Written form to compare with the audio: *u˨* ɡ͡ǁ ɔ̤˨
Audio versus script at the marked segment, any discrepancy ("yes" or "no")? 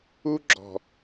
yes